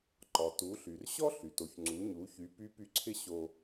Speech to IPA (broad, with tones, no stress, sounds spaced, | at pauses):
ǃ ɒ˩ t u˩˧ ɬ y˩ r ɕ ɔ˥ ɬ y˩ t o˩ ç ŋ͡ǀ u˩˧ ɲ u˩˧ ç y˩˧ p y˧˥ p y˧˥ ǀʰ ɪ˥ ɕ o˧